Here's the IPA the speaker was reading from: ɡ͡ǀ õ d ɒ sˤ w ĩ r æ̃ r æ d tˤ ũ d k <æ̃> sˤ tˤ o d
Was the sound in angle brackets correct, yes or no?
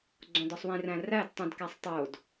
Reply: no